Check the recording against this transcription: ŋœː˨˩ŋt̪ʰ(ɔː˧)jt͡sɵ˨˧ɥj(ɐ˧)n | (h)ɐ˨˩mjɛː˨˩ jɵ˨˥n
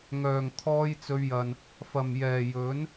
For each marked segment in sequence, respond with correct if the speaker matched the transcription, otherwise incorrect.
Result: correct, incorrect: ɐ˨, incorrect: f

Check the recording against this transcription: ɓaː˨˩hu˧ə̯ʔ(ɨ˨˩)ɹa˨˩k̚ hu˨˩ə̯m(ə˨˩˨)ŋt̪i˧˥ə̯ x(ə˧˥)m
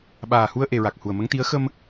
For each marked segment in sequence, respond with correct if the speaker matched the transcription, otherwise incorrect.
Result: incorrect: e˨˩, incorrect: ə˧˥, incorrect: ə˧

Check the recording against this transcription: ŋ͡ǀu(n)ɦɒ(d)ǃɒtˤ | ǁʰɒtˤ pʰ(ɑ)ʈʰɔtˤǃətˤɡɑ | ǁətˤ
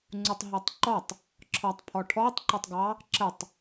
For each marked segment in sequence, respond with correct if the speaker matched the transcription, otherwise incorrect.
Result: incorrect: tˤ, incorrect: tˤ, incorrect: ɔ

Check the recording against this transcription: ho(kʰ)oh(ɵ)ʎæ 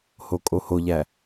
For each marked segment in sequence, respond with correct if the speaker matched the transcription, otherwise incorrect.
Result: incorrect: kʼ, incorrect: o

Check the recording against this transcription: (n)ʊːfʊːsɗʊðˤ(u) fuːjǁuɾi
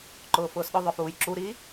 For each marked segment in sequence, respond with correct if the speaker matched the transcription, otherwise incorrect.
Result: incorrect: ǃ, incorrect: ʊ

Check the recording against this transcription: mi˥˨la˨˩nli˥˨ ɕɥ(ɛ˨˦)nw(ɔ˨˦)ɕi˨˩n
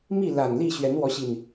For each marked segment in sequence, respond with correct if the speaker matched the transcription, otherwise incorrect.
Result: correct, correct

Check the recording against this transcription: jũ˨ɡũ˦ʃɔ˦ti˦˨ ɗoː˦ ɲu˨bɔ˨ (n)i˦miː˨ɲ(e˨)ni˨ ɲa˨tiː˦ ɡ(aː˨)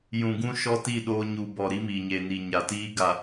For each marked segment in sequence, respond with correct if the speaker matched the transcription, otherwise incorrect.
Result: incorrect: ɾ, correct, incorrect: a˨

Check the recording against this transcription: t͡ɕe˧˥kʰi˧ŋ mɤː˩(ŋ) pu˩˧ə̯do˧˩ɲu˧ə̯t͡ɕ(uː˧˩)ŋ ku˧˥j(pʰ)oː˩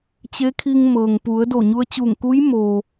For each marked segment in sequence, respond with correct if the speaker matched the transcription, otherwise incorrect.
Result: correct, correct, incorrect: m

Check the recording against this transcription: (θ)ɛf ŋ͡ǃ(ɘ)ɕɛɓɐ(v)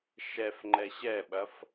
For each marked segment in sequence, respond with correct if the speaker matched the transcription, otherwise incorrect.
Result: incorrect: ʃ, incorrect: ɛ, incorrect: f

